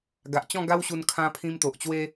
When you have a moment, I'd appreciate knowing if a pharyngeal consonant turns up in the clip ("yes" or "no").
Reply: no